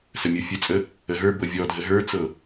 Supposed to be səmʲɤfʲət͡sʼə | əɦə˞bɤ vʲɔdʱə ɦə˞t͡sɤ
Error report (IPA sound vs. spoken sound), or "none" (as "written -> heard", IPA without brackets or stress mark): none